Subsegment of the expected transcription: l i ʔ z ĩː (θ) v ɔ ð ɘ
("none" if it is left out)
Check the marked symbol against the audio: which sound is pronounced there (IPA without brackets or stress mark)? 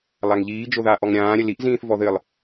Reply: θ